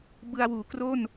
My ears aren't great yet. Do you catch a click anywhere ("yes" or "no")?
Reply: no